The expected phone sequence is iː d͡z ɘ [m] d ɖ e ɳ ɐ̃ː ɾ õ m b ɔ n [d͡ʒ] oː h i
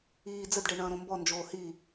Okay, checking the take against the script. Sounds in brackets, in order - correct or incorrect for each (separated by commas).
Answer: incorrect, correct